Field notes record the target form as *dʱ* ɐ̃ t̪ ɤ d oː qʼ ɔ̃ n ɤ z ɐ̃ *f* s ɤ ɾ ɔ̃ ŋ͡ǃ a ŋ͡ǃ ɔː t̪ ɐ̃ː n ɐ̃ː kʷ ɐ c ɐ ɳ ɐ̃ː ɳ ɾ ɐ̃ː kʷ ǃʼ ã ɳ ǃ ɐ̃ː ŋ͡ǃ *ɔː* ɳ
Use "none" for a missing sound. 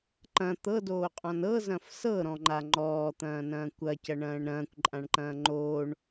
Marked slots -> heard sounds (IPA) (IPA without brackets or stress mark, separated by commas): ǃ, f, oː